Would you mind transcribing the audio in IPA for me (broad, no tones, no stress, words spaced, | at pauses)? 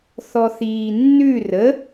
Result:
θɔθiːnːʉ rə